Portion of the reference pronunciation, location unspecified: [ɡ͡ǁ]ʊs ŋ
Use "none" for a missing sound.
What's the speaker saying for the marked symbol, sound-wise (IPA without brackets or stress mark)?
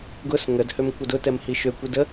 ɡ